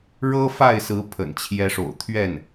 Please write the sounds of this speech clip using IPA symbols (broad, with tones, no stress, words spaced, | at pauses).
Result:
ɻɤ˥ fa˥˩ɪ̯sɹ̩˧˥ pʰə̰˨˩nt͡ɕʰjɛ˧˥ʂo̰˨˩ʊ̯ t̪ʰɥɛ˥˩n